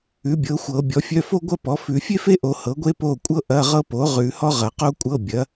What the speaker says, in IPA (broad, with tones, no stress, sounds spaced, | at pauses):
ʉ˩˥ bʲ ɤ˩˥ xʷ ɤ˨˩˦ bʲ ɔ˩˥ fʲ œ˧˥˧ f o˥ ɡʷ ɐ˥ p ɔ˩˥ f ʉ˨˩˦ fʲ e˥ f e˥ ʔ o˨˩˦ h ɤ˩˥ ɡʷ e˥ p o˥˨ kʷʼ ɤ˥ ʔ ɐ˧˥˧ ʁ ɤ˥ p o˩˥ ʁ ʉ˨˩˦ h ɔ˥ ʁ ɐ˨˩˦ q o˥ kʷʼ ɤ˧˥˧ bʲ ɐ˩˥